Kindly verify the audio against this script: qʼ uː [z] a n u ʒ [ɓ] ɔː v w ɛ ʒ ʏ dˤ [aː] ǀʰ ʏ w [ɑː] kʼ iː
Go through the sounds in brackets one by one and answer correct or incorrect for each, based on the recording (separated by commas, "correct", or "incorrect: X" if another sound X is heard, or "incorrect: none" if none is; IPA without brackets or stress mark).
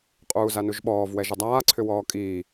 correct, correct, correct, incorrect: ɔː